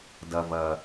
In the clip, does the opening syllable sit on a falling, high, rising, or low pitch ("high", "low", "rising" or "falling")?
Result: low